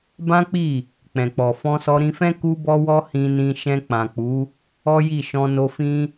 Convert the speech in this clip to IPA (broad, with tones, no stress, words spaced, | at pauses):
bã˦k͡pi˦˨ | k͡pɛ̃˨k͡pɔ˨ fɔ̃˧sɔ˧ɾĩ˧fɛ̃˦ ku˧bɔ˧ wɔ˦hĩ˧nĩ˧ ʃɛ̃˧k͡pã˨k͡pu˨˦ | ɔ˦ji˦˨ʃɔ̃˧ no˧ fĩ˦